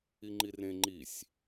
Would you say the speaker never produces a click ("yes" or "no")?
no